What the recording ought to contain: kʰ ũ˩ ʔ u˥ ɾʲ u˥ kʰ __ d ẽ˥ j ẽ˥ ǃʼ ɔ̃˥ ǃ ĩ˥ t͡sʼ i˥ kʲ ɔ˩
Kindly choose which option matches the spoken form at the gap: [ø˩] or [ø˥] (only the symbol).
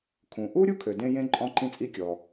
ø˩